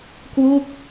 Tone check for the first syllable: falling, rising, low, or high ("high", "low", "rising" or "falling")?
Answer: falling